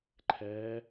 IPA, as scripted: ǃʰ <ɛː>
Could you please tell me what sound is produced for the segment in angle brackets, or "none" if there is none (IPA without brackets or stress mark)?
ɛː